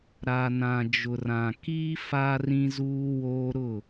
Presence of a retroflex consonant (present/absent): absent